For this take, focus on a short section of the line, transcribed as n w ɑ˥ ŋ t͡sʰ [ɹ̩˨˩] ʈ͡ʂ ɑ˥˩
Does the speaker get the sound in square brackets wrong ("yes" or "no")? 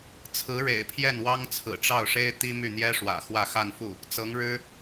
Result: no